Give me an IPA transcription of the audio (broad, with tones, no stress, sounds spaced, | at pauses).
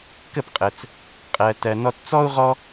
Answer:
k ə˥˩ p qʼ ə˩ t͡s | qʼ ɜ˩ t ɜ˩ n ɔ˧ t t͡s ɔ˥ u̯ ʁ ɔ˥